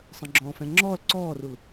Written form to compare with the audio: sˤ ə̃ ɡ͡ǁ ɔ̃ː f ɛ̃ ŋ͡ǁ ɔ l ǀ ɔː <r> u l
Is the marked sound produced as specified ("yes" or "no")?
yes